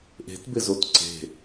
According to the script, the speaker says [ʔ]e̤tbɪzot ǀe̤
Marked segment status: correct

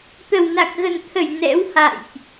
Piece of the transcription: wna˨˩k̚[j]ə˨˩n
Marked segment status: incorrect: ɣ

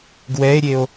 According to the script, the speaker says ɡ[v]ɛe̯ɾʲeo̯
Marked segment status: incorrect: w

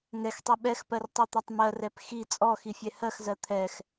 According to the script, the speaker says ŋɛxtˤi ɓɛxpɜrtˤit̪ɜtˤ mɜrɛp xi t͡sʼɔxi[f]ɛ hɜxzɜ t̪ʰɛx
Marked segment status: incorrect: fʲ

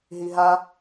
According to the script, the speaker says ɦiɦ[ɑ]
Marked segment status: incorrect: a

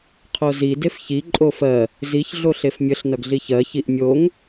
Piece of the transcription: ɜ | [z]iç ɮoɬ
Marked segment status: correct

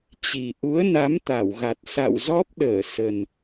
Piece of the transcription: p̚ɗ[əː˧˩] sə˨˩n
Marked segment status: correct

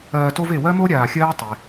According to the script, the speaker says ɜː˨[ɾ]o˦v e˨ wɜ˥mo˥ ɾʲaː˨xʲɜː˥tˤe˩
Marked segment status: incorrect: t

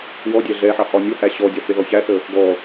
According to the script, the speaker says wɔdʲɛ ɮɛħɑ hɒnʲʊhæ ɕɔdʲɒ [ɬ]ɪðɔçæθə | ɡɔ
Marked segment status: incorrect: θ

